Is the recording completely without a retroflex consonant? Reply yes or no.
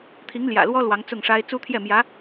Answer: no